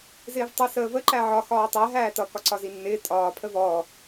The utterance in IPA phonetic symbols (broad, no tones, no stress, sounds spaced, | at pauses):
z ɪː v tˤ ʌ s əː v ə ǃ æ ʕ ɒ x ɒː tˤ æ ɦ æː t ʌ k ɒ ǀ ɒ z i nː ɪː tʼ ɒː pʰ ə v ɔː